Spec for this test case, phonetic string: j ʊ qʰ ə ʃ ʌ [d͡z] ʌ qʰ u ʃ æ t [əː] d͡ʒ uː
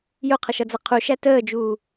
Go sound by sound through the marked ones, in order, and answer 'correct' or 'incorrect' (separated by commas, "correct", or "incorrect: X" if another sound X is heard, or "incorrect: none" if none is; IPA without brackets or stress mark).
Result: correct, correct